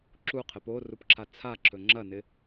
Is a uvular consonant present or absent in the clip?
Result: present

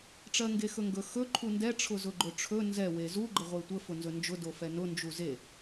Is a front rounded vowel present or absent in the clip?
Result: absent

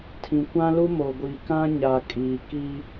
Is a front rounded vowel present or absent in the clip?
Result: absent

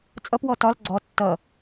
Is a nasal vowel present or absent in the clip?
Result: absent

